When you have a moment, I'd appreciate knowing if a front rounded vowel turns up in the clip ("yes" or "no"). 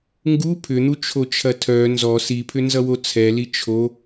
yes